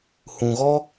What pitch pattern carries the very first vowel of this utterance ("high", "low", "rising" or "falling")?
low